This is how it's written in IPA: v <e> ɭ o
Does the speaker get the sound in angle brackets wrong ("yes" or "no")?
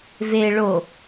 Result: no